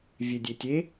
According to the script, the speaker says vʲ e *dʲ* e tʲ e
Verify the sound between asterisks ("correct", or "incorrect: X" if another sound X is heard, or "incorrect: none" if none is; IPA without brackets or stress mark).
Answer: correct